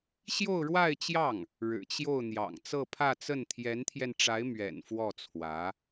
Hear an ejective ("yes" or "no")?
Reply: no